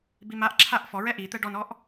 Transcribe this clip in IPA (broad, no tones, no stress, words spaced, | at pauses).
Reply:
bimaʔǁʰaʔ fɔɹɛ ʔit̪ɛ ɖɔnɔʔ